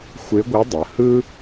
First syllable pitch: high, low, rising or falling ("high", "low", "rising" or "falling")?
rising